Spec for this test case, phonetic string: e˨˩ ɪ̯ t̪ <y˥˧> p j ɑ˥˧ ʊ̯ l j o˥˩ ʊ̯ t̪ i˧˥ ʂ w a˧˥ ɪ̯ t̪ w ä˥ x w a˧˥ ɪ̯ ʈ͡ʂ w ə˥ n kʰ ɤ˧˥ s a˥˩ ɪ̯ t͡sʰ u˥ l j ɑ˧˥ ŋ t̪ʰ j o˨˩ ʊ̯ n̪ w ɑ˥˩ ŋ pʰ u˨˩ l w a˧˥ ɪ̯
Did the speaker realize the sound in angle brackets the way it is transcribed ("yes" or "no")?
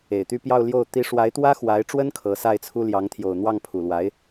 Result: yes